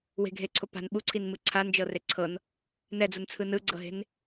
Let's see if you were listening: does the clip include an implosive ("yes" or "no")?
yes